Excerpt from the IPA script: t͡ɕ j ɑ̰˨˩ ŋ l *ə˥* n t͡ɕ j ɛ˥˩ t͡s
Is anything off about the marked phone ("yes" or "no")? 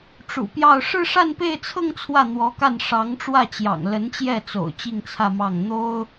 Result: yes